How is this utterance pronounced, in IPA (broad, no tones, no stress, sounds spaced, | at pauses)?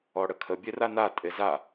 ɔ ɽ ə kʰ ə bʲ e r a n a tʼ e z a